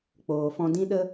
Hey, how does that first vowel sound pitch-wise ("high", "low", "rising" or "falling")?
low